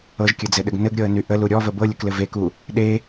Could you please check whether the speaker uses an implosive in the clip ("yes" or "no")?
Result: yes